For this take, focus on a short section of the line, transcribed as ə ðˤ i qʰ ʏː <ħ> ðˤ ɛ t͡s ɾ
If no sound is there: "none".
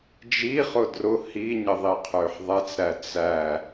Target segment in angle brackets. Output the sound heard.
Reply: ħ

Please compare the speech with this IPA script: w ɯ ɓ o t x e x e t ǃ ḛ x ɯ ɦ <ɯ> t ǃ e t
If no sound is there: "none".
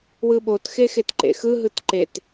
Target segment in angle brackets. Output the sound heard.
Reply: ɯ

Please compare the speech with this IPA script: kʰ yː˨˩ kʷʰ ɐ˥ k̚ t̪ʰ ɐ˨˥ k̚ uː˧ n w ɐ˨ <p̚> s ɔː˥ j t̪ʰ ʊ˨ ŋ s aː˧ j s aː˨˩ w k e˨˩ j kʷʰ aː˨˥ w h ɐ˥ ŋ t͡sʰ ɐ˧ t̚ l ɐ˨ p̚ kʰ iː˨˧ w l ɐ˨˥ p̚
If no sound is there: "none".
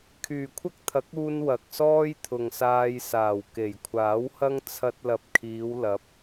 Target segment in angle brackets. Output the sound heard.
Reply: k̚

